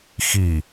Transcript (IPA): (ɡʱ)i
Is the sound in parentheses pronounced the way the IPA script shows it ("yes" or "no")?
no